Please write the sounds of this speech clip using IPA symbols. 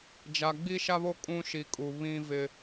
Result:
d͡ʒ a˨ ɡ͡b i˦ ʃ a˦ β o˦ kʼ ũ˦ ʃ i˨ kʼ u˨ β ĩ˦ v ɪ˦

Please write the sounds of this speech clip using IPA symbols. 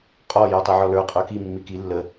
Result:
qʼ ɔ j ə˞ tˤ i ʕ ɔ l ə˞ qʼ ə˞ k i mː i k i lː ə

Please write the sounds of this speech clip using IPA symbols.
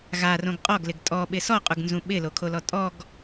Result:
ɣ a r õ ɡ qʼ ɔ ɡ l ɪ ɡ tʼ ɔ ɓ ɪ s ɔ qʼ u ɡ n z ũ ɓ ɪ l o kʰ o l ɔ tʼ ɔ ɡ

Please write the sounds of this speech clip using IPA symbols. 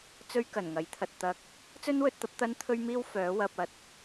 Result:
t͡s ɵ˧ ɥ k ɐ˨˩ n ŋ ɐ˨˥ j t̪ʰ ɐ˨ t̚ t̪ ɐ˧ k̚ | t͡s ɵ˥ n w ɵ˧ t̚ t̪ ɐ˨˥ p̚ t̪ ɐ˥ n t̪ʰ ɵ˥ ɥ m iː˥ w f œː˨˥ w ɐ˧ p̚ ɐ˧ t̚

